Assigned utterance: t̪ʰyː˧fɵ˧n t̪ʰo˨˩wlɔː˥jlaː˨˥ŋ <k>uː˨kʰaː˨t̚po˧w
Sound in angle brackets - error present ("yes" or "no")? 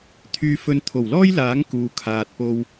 no